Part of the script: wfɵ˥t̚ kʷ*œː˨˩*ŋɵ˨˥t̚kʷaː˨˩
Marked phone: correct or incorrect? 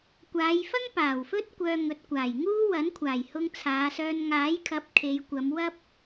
incorrect